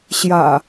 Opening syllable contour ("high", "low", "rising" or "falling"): low